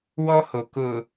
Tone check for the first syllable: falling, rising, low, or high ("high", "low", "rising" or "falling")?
high